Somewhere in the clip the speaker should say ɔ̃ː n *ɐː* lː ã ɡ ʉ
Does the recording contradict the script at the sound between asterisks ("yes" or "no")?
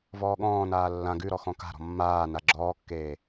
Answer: yes